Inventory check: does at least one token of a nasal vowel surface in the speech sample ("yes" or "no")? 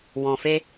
yes